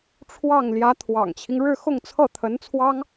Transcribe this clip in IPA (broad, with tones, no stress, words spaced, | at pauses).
ʈ͡ʂʰwɑ˥˩ŋ ljä˧˥t̪ʰwɑ̰˨˩ŋt͡ɕʰi˦ŋ ɻɻ̩˥˧xʊ˥˧ŋt͡sʰɤ˥˩ t̪ʰə˧˥nt͡sʰwɑ˥ŋ